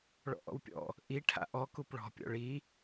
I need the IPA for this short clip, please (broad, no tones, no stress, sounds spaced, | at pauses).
ɭ ɔ̰ ʔ ɔ̰ w pʲ ɔ̰ | ʔ i ʈʰ a̰ ʔ ɔ k u p ɭ ɔ̤ pʲ ɔ̰ ɭ i